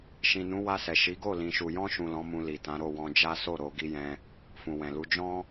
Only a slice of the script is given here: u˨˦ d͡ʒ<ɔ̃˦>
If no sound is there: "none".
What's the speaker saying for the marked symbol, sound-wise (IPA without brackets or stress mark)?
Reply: ɔ̃˦